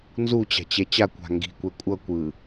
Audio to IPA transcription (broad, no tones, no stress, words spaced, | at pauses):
nzut͡ɕa̤t͡ɕɛ t͡ɕakʷa̤ ŋɡi̤kʷɛ kʷʼʌkʷɯ